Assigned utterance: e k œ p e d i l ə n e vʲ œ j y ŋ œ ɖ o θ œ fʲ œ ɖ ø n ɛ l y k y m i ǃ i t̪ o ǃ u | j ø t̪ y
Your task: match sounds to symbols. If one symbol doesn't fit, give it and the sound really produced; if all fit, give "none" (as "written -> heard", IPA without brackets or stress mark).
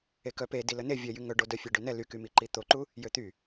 θ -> d